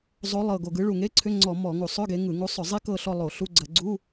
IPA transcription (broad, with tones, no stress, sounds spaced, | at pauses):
zˤ o˨˦ lˠ ɤ˨˩ ɡ o˨˩ ɡ ɯ˨˦ ɭ u˨˩ ŋ e˧˥˧ ǀʰ ʏ˧˥˧ ŋ͡ǀ ɔ˧˩˧ m ɔ˧˩˧ ŋ u˧˩˧ sˤ ʏ˧˥˧ ɡ e˨˦ ŋ ɯ˧˩˧ ŋ u˨˦ sˤ ʏ˧˩˧ zˤ i˦˥ k ɤ˦˨ ɬ ɔ˦˨ lˠ o˧˩˧ ɬ u˧˥˧ ɡ͡ǀ ə˧˩˧ ɡ͡ǀ u˧˥˧